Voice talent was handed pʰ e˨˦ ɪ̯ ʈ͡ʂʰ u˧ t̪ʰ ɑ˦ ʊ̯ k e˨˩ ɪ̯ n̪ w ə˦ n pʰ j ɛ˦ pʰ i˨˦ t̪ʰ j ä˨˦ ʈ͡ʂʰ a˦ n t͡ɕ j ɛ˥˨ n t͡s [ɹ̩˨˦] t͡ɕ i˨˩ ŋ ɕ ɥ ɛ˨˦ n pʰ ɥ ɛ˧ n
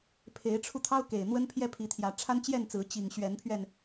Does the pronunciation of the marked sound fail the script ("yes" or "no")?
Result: no